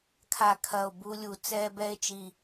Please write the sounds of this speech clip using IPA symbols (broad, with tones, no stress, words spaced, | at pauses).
kʰa˨˩kʰɐ˨˩o̯ bu˧lʲu˨˩ t͡sɛ˧bɛ˧e̯t͡ʃi˨˩